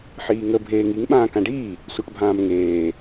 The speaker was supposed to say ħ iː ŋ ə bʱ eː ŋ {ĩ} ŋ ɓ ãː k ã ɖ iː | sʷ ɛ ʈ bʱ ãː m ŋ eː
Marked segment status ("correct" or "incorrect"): incorrect